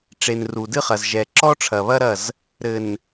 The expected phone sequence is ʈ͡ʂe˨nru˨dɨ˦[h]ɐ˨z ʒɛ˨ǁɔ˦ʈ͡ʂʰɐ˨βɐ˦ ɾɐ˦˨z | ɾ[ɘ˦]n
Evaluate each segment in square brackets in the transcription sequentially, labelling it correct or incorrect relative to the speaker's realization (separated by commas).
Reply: incorrect, incorrect